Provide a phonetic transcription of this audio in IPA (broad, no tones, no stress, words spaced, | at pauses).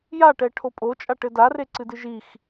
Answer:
jaʈɛ ʈʰopʼot͡ʃʼa ʈɘdare ǀɨdɨʒix